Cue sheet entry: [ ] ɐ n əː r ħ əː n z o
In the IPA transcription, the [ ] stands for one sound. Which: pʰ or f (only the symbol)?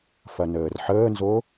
f